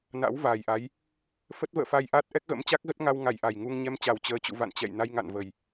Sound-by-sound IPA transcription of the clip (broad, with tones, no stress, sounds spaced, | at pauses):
n a̰˧˥ w v aː˨˩ j ʔ a˨˦ j | f ə˦˥ t̚ v ə̰ː˧˨ f a˧ j ʔ aː˦˥ t̚ ʔ ɛ˦˥ k̚ ɣ ə̰˧˥ m t͡ɕ a˦˥ k̚ ɣ ə˦˥ t̚ ŋ a˧ w ŋ a˧˩ j ʔ a˨˩ j ŋ u˧ ŋ ɲ ɛ˧ m t͡ɕ a˨˩ w t͡ɕ əː˨˦ t͡ɕ ṵ˧˨ v a̰˧˨ n t͡ɕ ɛ̰˧˨ j n a˧ j ŋ a̰˧˨ n v ə˨˩ j